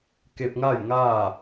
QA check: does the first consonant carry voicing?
no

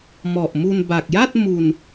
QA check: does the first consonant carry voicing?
yes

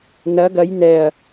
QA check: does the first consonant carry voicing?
yes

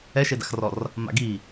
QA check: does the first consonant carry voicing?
no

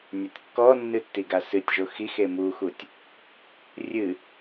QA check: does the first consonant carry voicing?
yes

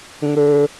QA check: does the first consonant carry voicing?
yes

